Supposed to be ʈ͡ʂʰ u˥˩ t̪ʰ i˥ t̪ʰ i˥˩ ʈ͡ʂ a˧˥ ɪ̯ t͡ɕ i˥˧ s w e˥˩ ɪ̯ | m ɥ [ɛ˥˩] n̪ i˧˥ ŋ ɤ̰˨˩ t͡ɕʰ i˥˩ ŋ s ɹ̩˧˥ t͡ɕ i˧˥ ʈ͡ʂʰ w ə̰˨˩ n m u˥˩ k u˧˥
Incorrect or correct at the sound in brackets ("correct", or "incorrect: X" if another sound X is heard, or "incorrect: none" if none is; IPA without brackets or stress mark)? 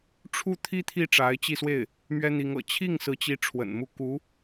incorrect: ɛ˥